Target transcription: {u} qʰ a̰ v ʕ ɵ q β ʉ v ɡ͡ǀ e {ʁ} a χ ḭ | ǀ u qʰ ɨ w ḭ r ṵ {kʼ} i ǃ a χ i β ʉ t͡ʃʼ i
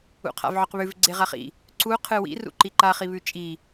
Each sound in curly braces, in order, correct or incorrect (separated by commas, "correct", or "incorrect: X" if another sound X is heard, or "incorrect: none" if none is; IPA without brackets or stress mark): incorrect: ṵ, correct, incorrect: ǃ